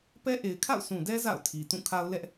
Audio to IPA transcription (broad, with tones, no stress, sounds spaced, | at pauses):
p ɛ˦ ʔ e˨ ɪ̯ kʰ a̰˦˨ ʊ̯ sʰ ũ˨ d ɛ˦ z a̰˦˨ ʊ̯ tʰ i˨ t ũ˦˨ kʰ a˦ ʊ̯ l ɛ˦ ʔ